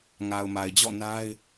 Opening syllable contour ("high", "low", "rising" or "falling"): low